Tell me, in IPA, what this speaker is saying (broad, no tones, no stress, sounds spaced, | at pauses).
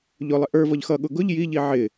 ʎ ʊ lˠ ɪ ʔ ə˞ v ʌ ʎ x ʌ ɠ ʊ ɡ ʊ ʎ j i ʎ i ʕ ɪ